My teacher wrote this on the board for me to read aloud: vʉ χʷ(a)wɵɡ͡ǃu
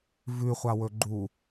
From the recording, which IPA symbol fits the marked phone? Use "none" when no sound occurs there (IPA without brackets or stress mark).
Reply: a